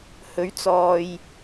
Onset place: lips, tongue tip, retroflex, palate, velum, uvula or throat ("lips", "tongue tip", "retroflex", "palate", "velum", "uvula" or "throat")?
throat